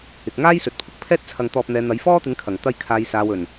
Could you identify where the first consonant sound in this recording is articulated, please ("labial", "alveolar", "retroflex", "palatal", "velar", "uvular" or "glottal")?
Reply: velar